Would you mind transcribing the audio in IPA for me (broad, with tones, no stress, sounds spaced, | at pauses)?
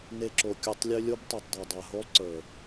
n e˧ ǁ o˨ kʲ u˨ tˤ lʲ ø˧ lʲ o˦ b tˤ ø˨ tˤ dˤ o˨ dˤ a˨ ɦ o˦ lˠ ǀ ə˞˨